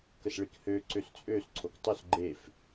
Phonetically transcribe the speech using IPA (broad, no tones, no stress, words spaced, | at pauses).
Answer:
kəsɭikhø ǀøst͡sʼøs ǀʰoktˤøs ɡ͡ǃef